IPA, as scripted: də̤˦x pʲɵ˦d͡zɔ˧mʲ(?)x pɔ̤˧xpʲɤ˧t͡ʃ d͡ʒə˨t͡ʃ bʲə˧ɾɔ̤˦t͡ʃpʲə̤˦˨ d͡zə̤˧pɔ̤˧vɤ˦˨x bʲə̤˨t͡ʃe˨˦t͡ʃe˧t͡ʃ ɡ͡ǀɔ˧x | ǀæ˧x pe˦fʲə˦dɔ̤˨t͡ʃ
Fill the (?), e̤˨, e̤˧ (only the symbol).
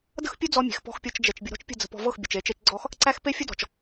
e̤˨